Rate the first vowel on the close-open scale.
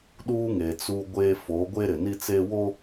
close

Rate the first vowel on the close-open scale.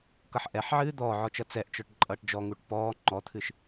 mid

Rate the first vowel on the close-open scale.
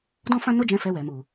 mid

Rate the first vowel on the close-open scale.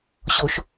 mid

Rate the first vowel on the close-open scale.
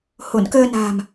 mid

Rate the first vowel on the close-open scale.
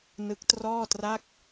close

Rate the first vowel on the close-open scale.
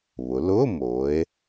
close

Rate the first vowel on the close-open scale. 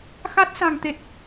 open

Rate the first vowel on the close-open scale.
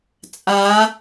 open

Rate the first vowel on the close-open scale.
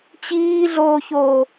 close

